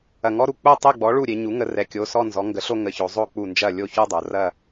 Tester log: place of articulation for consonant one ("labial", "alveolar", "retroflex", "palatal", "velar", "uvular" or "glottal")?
velar